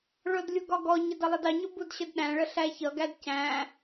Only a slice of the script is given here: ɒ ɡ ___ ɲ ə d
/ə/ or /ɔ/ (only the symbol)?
ɔ